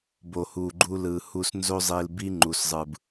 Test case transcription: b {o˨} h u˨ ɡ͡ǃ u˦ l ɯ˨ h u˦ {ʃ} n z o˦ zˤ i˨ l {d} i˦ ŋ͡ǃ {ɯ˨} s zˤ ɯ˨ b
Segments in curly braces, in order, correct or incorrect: correct, incorrect: s, incorrect: b, incorrect: u˨

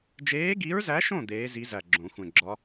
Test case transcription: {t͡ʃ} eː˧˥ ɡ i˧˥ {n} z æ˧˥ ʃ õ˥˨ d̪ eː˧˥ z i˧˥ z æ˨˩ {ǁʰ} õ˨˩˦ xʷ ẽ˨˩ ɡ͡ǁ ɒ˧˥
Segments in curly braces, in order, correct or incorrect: incorrect: d͡ʒ, incorrect: ɹ, incorrect: ɡ͡ǁ

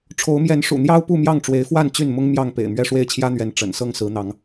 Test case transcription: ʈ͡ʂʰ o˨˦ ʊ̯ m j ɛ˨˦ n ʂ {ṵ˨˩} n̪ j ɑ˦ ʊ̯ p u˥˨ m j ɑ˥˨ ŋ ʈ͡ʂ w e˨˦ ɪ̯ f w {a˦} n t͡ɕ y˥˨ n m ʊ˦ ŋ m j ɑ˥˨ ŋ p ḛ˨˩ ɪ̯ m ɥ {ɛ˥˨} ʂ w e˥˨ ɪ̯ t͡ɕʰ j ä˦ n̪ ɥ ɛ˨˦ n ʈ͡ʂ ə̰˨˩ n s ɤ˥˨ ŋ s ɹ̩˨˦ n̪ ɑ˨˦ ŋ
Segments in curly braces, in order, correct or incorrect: correct, incorrect: a˥˨, correct

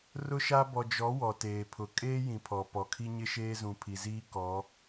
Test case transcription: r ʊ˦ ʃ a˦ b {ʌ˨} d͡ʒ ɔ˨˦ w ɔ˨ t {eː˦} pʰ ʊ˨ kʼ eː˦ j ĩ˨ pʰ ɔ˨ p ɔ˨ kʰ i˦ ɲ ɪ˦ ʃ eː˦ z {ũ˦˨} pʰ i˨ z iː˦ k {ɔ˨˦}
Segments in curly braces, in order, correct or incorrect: incorrect: ɔ˨, incorrect: eː˨, incorrect: ũ˨, correct

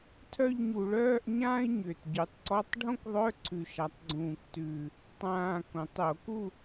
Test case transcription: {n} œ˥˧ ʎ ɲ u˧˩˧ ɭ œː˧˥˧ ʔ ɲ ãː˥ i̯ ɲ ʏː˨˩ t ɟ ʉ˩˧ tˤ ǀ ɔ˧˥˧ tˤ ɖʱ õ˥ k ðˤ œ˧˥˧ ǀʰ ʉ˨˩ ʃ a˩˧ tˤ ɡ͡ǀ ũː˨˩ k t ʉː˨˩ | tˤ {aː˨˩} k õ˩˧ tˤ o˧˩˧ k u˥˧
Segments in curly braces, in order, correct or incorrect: incorrect: tʰ, incorrect: ãː˨˩

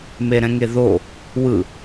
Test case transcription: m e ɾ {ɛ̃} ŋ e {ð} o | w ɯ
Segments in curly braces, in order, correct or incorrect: correct, correct

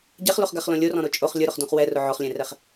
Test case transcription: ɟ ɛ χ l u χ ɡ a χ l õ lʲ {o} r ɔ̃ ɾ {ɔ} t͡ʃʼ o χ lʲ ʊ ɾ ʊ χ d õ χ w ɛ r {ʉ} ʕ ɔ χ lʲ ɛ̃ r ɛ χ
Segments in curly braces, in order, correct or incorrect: correct, incorrect: o, incorrect: ʊ

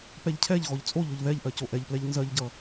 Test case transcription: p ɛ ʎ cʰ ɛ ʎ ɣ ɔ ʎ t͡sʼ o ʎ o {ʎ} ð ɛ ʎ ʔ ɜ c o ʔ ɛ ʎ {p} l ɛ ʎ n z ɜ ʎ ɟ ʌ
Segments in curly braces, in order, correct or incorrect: correct, correct

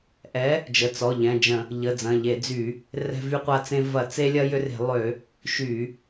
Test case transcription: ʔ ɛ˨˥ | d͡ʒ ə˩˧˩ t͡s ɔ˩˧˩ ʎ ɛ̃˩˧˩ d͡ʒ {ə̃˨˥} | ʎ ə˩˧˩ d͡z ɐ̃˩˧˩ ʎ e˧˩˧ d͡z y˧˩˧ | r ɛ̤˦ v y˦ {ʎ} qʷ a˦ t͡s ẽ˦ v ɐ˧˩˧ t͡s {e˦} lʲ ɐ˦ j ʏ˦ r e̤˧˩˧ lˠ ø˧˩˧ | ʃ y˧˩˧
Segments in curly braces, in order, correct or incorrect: incorrect: ə̃˧˩˧, incorrect: none, correct

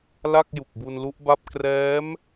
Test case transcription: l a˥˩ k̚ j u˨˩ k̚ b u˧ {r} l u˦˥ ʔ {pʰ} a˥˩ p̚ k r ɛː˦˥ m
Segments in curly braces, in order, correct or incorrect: incorrect: n, incorrect: b

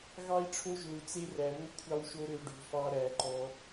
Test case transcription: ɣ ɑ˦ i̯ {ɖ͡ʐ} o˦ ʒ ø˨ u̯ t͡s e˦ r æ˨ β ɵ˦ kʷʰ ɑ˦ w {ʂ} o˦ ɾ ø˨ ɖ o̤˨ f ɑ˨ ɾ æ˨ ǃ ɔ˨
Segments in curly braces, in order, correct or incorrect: incorrect: ʈ͡ʂʰ, incorrect: ʃ

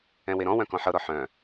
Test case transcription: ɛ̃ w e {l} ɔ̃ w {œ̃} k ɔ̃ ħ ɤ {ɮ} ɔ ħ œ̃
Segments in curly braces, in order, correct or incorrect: incorrect: ɾ, correct, incorrect: ɾ

